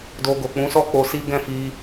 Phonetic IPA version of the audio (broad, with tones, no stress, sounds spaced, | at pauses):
d o˧ ɡ o˨ k͡p ũ˨˦ s ɔ˦ k͡p o˧ s i˦ ɡ ɛ̃˦˨ f i˧